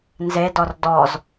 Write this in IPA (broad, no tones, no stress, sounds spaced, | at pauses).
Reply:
n z e d ɔ r d ɔ z